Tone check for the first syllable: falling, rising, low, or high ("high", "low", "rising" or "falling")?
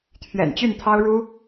low